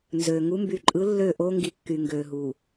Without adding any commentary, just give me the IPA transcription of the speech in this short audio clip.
nzø˨ ŋu˨˦mby˨ǃʼɯ˨˦ lːøː˦˨ʔo˦ ŋɡi˨ kːy˨ŋɡøː˨ɦu˨

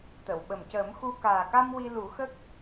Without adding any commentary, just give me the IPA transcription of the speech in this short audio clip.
t̪ə˨˩˨wɓə˨˩mcəː˨˩˦mxu˧ kaː˨˩ka˧m wi˧lu˨˩˦xə˦˥k̚

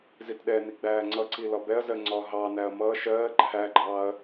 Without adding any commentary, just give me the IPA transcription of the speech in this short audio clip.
zitɗɛni ɡ͡bæːŋ͡ǀʌǀi lɒbɛɐ̯zɜ ŋ͡ǀɒɦɑnæɐ̯ mʌːʃ ɜː ǃʰæɡ͡ǃɑːɐ̯

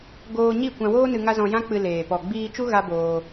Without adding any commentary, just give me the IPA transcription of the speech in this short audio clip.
ɡoː˧ɲi˦˨ kʷã˧woː˦nɨ˧ ŋa˦zɔ̃˧jã˦ k͡pɨ˧leː˨ pɔ˨ɡ͡biː˧t͡ʃu˦ ɣa˦boː˧

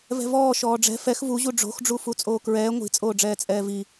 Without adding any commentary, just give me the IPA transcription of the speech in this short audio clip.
vɛ̤vɔː ʃɔːɖ͡ʐɛ̤ fɛx vuʑu ɖ͡ʐo̤xɖ͡ʐu fut͡sʼoːkɹɛː ŋʷi̤t͡sʼoːɖ͡ʐɛː t͡sʼɛːvi

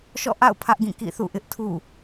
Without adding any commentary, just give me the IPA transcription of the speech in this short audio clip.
ʃɔ̰˦˨ʔa̰˦˨ʊ̯ pʰä˦ʔɡĩ˦˨ kḭ˦˨θṵ˦˨ʔɪ˦ʔ tʰṵ˦˨

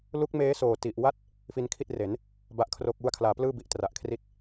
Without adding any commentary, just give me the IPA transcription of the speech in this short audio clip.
lu˦˥k̚meː˦˥ soː˨˩ti˨˩ʔwa˥˩t̚ | fi˧nkʰi˥˩t̚re˩˦n | ba˥˩ʔkʰro˥˩k̚ wu˧a̯kʰlaː˩˦plɯː˥˩ bi˨˩ʔtra˨˩ʔ kʰri˥˩t̚

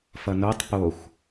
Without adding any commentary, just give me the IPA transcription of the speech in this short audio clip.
fʌnotˤ poxʷ

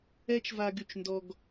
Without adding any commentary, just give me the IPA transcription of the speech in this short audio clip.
ɛ˥t͡ʃva˧ɡ y˩t͡ʃndɔ˧ɡ

